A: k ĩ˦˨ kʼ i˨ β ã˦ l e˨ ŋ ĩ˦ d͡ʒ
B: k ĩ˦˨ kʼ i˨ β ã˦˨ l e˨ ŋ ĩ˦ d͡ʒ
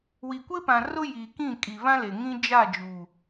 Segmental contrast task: A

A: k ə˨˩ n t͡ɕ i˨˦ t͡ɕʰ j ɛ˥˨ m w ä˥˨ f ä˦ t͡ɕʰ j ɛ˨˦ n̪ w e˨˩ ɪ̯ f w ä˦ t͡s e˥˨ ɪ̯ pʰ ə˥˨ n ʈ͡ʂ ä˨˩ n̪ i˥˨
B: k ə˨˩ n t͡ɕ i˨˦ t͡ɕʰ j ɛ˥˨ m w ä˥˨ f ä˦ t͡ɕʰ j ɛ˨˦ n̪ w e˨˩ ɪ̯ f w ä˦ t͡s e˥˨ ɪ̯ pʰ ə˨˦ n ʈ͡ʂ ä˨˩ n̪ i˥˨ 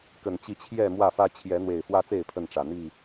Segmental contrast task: A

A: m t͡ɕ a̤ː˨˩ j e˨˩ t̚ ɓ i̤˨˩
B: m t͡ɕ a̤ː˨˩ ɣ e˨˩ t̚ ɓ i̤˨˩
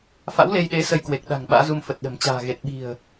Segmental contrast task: B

